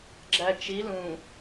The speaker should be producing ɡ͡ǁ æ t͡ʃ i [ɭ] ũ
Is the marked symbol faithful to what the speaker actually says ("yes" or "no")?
no